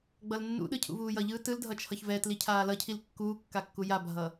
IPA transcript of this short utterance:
ɡ͡b ʌ l nː ṵ ɗ ɯ cʰ ṵ v uː j ʌ ʎ ɯː t ɯ l dʱ ʌ t͡ʃʰ ʌ ç v ɛ t l i cʰ aː l ʌ cʰ i l kː uː kː a kː u j a bʱ ʌ

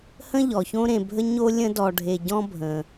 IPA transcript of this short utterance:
h ə̃˥ ʎ ɔ˩ ç õ˦ ɾ ẽ˨ bʱ ə˥ ɲ o˦ lʲ ə̃˦ d ɔ˨ ɖʱ e˨ ɟ ɔ̃˥ bʱ ə̃˩

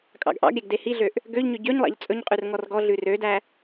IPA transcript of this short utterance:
kʼ ɑ̰ ɡ ʔ ɑ̰ ɡ ɾʲ æ ɡ d e h i ɮ ø ʔ | ɡ ø ʎ ɲ ø ɟ ø ɲ lˠ ɑ̰ ʎ t͡sʼ ɵ ɲ qʼ ʉ r ŋ ɔ r ɡ ɔ ɮ ʉ r ø d æ

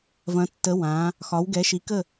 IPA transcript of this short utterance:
v ɐ̃˩˧ tː ə˩˧ w ã˩˧ | x ɒ˩˧ w ɡ ɛ˩˧ ʃ i˩˧ k ə˧˩

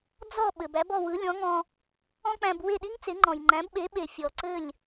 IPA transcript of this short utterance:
d͡z ɔ˥˩ ɓ ɘ˩ b æ˩˥ b ɔ˥˩ w ɯ˩˥ lʲ ɔ̃˩˥ ŋ ɔ̃˧ | ɔ̃˥ k͡p æ̃˧ b w e˥˩ ɗ i˥ ŋ t͡s e˩˥ ŋ͡ǃ ɔ̃˩ j ŋ͡ǃ æ̃˩˥ b ɓ e˩˥ ɓ e˩ fʲ ɔ˩ ǀ ɘ˥˩ lʲ

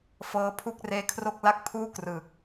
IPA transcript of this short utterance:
f ɤː˦˥ pʰ u˥˩ k̚ r eː˦˥ kʰ r o˥˩ k̚ l a˥˩ k̚ pʰ uː˥˩ k r ɯ˨˩ k̚

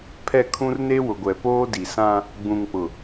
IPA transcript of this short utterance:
pʰ ɛ˦˨ kʰ ũ˦ r n e˦ w ʊ˨ ɡʷ ɛ˨ p oː˦ d i˨ s ã˦ | ɡ͡b ũ˨ ŋ k͡p ʊ˨

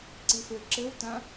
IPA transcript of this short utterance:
ǀ i f ɘ ǁ ɘ w t ã

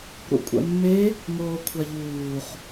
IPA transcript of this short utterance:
ɾ ṵ kʷʼ ɛ̰ mː e | ŋ oː kʷʰ a ʎ uː χ

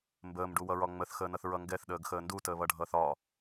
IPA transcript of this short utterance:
m b əː m ɖ u w ʌ ɹ ɒ ŋ͡m ə θ x əː n ʌ θ ɹ ʌ ŋ ɡ ɛ θ ɗ əː ɡ x əː n d u t əː β ʌ ɖʱ ʌː θ ɒ

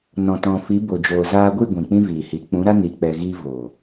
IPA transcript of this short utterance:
n ɔ̃˨ t ɔ̃˨ f i˨˦ b o˨ d͡ʒ oː˨ z aː˧ ɡʷ i˦˨ ɡʷ ĩ˨ k͡p ĩ˦ v iː˨ h i˨˦ k͡p ũ˨˦ ɾ a˦ n i˧ k͡p ɛ˧ ɣ iː˦ v oː˨

